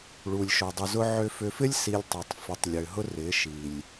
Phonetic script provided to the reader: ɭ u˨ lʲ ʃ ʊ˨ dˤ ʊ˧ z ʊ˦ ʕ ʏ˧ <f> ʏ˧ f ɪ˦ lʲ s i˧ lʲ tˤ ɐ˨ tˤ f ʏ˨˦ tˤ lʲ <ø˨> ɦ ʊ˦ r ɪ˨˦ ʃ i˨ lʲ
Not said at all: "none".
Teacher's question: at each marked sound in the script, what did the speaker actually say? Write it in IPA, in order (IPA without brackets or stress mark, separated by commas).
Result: f, ø˨